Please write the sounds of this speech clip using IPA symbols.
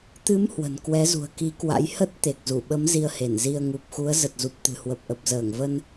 t̪ ɨ˨˦ m h w ə̤˨˩ n k w ɛ˨˦ z ṳ˨˩ ə̯ k i˨˦ k w a̰˧˥ j h ə˦˥ t̚ t̪ e˨˩ k̚ z u˧˩ ɓ ə˨˦ m z i˧ ə̯ h e˧˩ n z i˧ ə̯ ŋ u˨˩ p̚ x u˨˦ ə̯ z ə˨˩ t̚ z u˨˩ p̚ t̪ ɨ̤˨˩ h w ə˨˩ p̚ ʔ ə˨˩ p̚ z əː˧˩ ŋ v ə˧ n

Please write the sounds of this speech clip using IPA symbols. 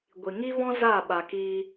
ɡʷ i˨ ŋ i˦ v ɔ̃˦ z a˦˨ ɓ a˨ k iː˧

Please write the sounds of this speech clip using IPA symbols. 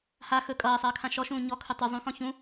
h a x ɵ kʼ ʌː sˤ ʌː kʰ ã ʃ ɔ ʃ ũː ɲ ɔ kʰ ɵ tˤ u zˤ ũ x ɔ̃ ç ũ

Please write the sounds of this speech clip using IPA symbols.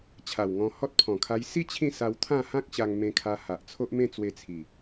t͡ɕʰ a˨˩ w ŋ ɔ̃˧ h ɔ˦ t̚ pʰ ɔ̃˨˩ kʰ a˧ j s i˥˧ t͡ɕʰ ĩ˥˧ s a˧ w t̪ʰ ã˥˧ h ã˦ k̚ ɕ a˧ ŋ m ẽ˧ kʰ a˧ h a˨ ʔ t͡sʰ o˦ ʔ m ẽ˥˧ t͡s w e˧ t͡sʰ i˨˩

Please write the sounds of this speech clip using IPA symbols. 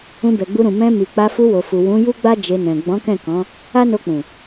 ũ˧ b ɛ˨ ɡ͡b u˧ ɾ ũ˨ m ɛ̃˧ m i˨ k͡p a˧ f u˧ w o˨ f u˨ w ũ˨˦ j u˦ ɡ͡b a˦ d͡ʒ e˧ n ɛ̃˨ ɡ͡b ɔ̃˨˦ k ɛ̃˦˨ k ɔ̃˨˦ | a˦ n o˧ k͡p ũ˨

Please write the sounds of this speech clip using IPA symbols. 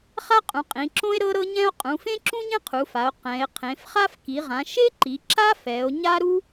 χ a˥ qʼ ũ˩˧ qʼ ĩ˩˧ ǁ õ˥ e̯ ɾ ɤ˥ ɾ ɤ˥ ɲ ɛ̃˥ o̯ qʼ ũ˩˧ f ẽ˥ ǁ ũ˥ ɲ ẽ˥ qʰ u˩˧ f a˩˧ o̯ q ɛ̃˩˧ e̯ qʰ ẽ˩˧ f χ a˥ f k i˩˧ ʁ ã˩˧ ʃ e˥ ǃ i˩˧ ǁ a˥ f ɛ˩˧ o̯ ɲ a˥ ɾ u˥

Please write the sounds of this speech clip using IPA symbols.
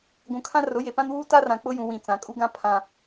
ɡʷ ũ˨ kʰ ã˦ r ʊ˨˦ j e˨ p ã˦ n w uː˦ t a˦ r ã˨ k͡p ʊ˦ j ũ˨ w ĩ˨ t͡s ã˨ kʼ u˦ ɡ ã˦ pʰ ã˦

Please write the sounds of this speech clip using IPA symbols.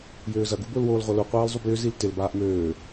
j øː z ɐ ɡ u b ʊː l w oː l ʁʷ a l u qʷ aː l zˤ u b j ʏ z i l t ɪ l b aː ʔ m øː

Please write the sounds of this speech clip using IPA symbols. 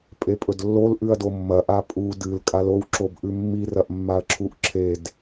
pʼ e pʼ ɵ d lː o l ʔ ʉ ɐ̯ d o mː ɐ ʔ a pʼ u d ɨ l kʼ a l o w ǁ o b ʔ ʉ mː i r ɐ ʔ mː a ɐ̯ ǁʰ u ʔ ǁʰ e d

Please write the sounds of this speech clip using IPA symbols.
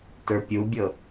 t ə˞ pʲ u bʲ ɤ

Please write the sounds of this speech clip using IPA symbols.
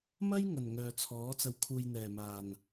m ɐ˥ j ŋ ɐ˨˩ n ŋ œː˨ t͡sʰ ɔː˨˥ t͡s ɐ˧ w kʰ uː˧ j n̪ ɛː˨˩ m aː˨˩ n

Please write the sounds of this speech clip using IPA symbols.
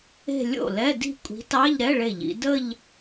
e̤˥˧ lʲ o̰˥˩ l ɛ˧˥˧ d i̤˥˩ kʷʼ i̤˨˥ t ɑ˧˥˧ ʎ ɾ ɛ˧˥˧ ɭ e˥˩ ʎ ḭ˨˥ d ə˥˧ ʎ

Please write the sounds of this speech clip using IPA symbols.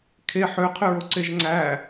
kʰ e ħ ø qʰ ø ɹ o ǀ e ʒ ŋ͡ǀ æ

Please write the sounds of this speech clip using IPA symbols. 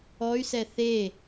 ɔ y̯ s ɛ θ e

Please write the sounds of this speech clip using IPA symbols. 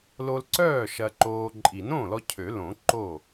l o˧ l ǀ œː˥˩ ʃ ɐ˧ ǃ oː˧ ǃʼ i˨˩˦ n õː˥˩ l ɔ˧ cʰ ø˨˩˦ l õ˨˩˦ ǃ o˥˩

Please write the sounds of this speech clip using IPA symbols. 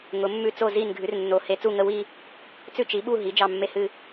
ŋ ʊ˨˥ mː ʉ˥˧ t͡s o˥˧ z i˥˧ n ɡʱ ʉ˨˥ r nː o˨˥ h e˨˥ t͡s u˥˧ ŋ ə˥˧ w i˥˧ | t͡s ʉ˥˧ t͡ʃ i˨˥ ɓ u˥˧ ɦ i˨˥ d͡ʒ ɑ˥˧ mː e˥˧ h ɨ˥˧

